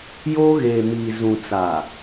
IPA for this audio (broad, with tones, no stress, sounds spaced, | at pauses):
j oː˦ ɣ eː˨ m iː˨ z ũ˨ t͡s a˨